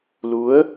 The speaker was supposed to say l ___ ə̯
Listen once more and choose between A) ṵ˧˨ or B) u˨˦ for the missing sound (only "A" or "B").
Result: B